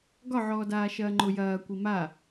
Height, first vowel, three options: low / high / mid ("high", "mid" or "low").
low